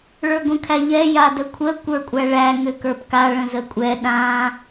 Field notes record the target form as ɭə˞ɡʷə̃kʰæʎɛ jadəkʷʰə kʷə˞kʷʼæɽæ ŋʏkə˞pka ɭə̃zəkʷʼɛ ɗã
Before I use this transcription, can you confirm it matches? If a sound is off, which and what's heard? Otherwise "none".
ɽ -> ɭ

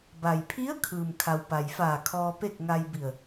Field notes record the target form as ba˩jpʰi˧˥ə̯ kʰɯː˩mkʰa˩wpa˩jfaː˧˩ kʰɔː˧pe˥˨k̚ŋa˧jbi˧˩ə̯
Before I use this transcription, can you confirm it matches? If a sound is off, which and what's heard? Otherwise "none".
none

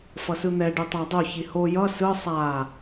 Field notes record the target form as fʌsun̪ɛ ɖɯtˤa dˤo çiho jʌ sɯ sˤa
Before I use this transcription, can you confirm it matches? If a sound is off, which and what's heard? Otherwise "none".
u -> ɯ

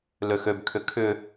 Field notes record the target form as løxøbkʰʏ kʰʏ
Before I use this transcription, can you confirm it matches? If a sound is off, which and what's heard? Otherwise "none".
none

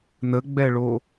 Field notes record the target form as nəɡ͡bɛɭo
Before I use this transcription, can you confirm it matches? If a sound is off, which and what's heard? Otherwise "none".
none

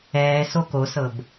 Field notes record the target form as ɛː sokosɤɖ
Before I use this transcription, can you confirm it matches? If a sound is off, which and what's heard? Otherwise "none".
ɖ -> b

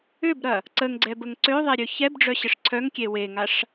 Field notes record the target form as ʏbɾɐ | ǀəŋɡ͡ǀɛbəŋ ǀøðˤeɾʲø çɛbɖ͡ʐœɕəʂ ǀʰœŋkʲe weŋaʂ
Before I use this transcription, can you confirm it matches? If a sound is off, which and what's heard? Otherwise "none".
none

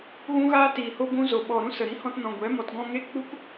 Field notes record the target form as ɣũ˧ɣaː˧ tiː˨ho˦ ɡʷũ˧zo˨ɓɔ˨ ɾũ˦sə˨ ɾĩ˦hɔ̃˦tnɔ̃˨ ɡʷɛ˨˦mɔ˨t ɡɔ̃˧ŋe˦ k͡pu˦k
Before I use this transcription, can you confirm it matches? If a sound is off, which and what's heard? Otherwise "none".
none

